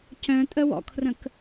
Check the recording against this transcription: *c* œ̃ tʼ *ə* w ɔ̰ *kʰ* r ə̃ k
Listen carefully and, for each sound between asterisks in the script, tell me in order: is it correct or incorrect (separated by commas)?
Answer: correct, correct, correct